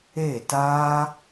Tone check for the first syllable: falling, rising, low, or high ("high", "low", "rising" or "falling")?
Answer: falling